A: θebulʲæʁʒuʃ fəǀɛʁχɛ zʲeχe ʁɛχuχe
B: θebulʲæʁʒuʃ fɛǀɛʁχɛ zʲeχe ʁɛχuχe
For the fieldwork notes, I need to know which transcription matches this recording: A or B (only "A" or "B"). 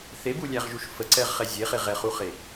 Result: A